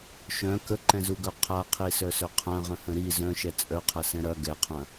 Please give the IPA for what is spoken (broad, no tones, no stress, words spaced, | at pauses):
ʃœ̃ kəǃɛ̃zuɡœ qʰaqʰisœsœ qʰɐ̃ʁə̃hə̃ ɾi zœ̃ʃɛ t͡sʼœqʰɐsɛ̃ ɾɐ ɡɛqʰɐ̃